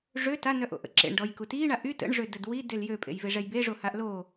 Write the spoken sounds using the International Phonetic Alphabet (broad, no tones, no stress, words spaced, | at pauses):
ʐø tanœʔo̰ ʔə̰ǁḛɳɖɔj kutiɳa ʔy tə̰ɳʐø dədwidel jøpʼḛjve ʐɛjbeʐo haʔlo